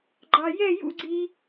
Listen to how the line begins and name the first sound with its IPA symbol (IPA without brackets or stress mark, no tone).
ɡ͡ǃ